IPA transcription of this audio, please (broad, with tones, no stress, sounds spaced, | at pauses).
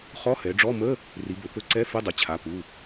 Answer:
χ ɔ˧˥˧ h ɛ˩˧ ɖ͡ʐ ɔ˧˥˧ m ə˧˥˧ | r i˩˧ b ɵ˩˧ p ɵ˧˥˧ ǀ ɛ˧˥˧ f ə˧˥˧ dˤ ə˩˧ t͡ɕʰ a˩˧˩ p u˩˧˩